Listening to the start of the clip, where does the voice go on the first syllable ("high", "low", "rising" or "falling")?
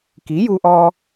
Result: rising